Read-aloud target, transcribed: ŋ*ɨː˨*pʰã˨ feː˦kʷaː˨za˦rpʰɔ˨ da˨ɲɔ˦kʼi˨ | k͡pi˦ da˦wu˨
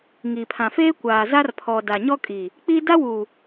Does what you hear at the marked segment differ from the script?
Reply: yes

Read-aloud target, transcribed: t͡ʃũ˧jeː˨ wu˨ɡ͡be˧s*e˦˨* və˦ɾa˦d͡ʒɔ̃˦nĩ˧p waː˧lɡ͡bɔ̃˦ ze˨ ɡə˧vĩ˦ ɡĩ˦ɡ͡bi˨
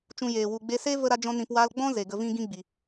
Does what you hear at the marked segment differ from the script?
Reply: yes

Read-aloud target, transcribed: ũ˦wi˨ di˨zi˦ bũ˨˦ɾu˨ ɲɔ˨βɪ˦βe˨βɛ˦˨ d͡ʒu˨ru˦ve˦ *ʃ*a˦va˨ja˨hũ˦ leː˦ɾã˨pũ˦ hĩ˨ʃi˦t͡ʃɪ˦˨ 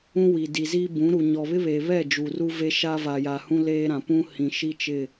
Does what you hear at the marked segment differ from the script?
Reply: no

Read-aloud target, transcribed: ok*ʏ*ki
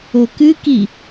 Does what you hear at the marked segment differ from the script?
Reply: yes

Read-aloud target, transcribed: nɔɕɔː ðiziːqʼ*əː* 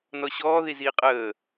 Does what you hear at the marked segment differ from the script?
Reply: no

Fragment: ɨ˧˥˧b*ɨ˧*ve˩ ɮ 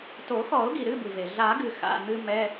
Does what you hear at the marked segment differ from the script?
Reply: yes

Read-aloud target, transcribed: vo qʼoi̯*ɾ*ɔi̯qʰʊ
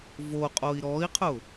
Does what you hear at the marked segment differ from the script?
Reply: no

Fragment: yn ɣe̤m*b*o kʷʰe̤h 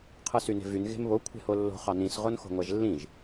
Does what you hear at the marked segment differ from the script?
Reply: yes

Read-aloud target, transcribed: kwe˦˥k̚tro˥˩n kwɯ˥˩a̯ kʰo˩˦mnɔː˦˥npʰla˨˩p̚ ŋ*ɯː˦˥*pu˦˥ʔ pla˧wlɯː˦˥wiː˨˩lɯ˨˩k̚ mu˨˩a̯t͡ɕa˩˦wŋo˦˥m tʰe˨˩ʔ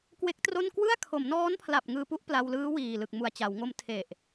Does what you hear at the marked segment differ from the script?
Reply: yes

